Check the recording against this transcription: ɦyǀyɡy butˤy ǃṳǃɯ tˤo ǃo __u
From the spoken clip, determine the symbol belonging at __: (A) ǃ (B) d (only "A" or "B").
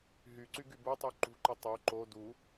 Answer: B